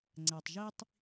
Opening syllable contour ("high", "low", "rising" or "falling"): low